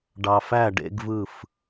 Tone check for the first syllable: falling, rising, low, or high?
low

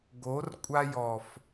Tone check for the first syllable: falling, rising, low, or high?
rising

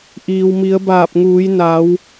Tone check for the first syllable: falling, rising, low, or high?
low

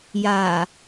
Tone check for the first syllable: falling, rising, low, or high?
low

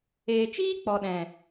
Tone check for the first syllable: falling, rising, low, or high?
low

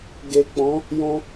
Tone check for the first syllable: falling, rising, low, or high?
low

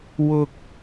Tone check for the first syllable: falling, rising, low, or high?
low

